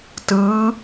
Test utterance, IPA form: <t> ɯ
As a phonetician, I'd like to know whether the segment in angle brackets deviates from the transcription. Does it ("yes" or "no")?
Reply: no